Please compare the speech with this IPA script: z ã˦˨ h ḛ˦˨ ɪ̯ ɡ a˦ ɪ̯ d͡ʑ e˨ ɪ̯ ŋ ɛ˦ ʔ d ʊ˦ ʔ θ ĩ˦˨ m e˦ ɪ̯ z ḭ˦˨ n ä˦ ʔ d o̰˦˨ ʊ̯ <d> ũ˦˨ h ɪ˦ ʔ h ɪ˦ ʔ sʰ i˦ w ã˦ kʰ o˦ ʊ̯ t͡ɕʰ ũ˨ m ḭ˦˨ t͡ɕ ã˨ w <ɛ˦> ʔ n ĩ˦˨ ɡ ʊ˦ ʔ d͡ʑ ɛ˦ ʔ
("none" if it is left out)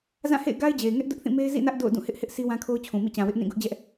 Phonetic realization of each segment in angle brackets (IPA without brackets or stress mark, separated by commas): d, ɪ˦